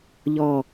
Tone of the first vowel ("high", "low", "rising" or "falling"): falling